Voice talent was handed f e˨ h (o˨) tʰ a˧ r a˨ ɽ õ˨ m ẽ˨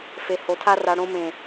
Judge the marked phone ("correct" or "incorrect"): correct